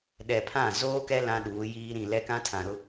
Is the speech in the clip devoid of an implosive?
no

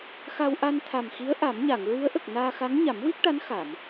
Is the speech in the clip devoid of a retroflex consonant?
no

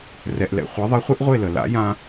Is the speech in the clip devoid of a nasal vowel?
no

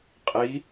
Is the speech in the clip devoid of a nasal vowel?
yes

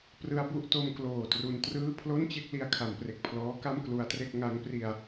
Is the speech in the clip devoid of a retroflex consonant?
yes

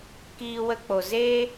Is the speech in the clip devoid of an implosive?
yes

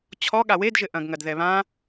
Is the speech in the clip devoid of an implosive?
no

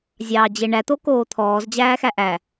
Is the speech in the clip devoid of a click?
yes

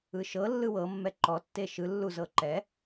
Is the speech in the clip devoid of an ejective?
yes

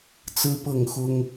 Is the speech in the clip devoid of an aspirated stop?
yes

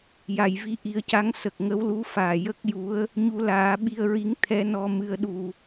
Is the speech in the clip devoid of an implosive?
no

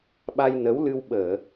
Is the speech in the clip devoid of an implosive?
no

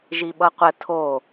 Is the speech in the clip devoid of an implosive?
no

